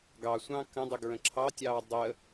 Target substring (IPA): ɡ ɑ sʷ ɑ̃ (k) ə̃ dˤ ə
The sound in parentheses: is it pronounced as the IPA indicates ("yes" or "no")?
yes